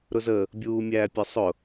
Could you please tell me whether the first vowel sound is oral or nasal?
oral